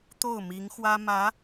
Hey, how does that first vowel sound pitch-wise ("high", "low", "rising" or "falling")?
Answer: falling